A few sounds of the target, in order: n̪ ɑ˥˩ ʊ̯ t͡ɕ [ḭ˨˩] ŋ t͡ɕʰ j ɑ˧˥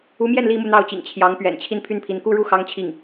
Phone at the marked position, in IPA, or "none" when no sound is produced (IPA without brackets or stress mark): ḭ˨˩